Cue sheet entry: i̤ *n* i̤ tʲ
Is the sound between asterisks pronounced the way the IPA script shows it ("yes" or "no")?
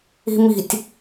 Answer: no